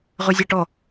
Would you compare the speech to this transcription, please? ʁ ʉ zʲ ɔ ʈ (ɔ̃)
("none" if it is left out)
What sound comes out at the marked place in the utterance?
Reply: ɔ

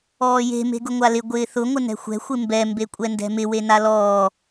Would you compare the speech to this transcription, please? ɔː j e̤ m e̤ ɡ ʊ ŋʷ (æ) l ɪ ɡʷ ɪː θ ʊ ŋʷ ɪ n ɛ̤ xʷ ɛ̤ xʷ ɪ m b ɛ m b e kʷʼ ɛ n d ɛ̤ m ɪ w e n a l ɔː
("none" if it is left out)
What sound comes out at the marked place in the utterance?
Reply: a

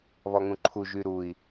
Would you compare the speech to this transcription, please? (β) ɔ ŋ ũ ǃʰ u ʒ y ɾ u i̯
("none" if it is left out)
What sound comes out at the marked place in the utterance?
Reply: β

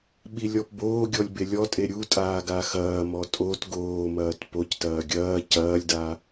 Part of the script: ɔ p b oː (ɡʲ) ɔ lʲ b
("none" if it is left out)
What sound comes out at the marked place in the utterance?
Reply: ɡʲ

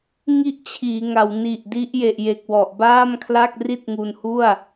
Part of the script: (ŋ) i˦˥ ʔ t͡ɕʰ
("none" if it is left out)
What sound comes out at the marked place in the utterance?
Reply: ŋ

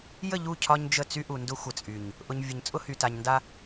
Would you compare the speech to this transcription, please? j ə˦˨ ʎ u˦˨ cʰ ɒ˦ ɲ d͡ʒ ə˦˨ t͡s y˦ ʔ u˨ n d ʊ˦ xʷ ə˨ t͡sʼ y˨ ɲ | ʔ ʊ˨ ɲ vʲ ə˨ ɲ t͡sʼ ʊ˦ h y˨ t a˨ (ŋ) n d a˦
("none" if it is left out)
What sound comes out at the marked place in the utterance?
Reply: ɲ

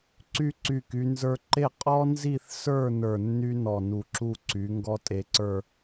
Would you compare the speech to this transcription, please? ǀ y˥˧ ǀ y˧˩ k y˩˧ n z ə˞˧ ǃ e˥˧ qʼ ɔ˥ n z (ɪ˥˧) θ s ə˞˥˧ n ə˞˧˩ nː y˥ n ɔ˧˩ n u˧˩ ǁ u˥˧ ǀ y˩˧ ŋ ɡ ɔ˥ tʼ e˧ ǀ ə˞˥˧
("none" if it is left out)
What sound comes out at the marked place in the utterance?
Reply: i˥˧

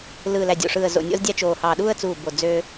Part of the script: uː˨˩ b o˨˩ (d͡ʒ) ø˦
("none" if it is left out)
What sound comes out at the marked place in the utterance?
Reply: d͡z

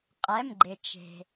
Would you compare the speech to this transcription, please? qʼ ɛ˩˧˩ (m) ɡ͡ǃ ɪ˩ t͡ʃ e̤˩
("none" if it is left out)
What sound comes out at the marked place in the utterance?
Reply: m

